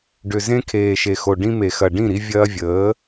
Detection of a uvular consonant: absent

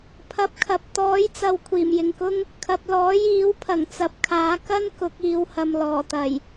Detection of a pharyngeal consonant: absent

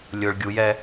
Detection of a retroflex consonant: present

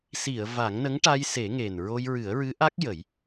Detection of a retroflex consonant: present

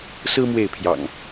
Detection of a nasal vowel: absent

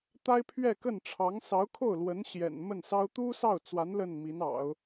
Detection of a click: absent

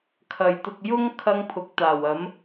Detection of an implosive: absent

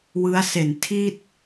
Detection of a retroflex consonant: absent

